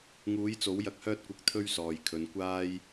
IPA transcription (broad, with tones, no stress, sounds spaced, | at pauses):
ŋ uː˨˥ j t͡s o˨˥ w j ɐ˧ k̚ h œː˥ t̚ kʷ ɐ˧ k̚ t̪ʰ ɵ˥ ɥ s ɔː˨ j kʰ ɵ˨˧ n kʷ aː˥ j